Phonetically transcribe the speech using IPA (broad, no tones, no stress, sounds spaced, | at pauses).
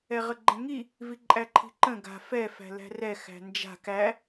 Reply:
ɛ ʁ ə ɡ͡ǃ ɛ̃ ŋ i | v i ǃʼ æ ǃʰ i̤ ǃ ə̃ ɡ a̤ f ɛ f æ̤ l æ̤ r ɛ x æ̤ n d͡ʒ a̤ k æ